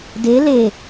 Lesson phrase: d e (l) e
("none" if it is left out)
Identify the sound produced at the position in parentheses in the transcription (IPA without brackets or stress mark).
l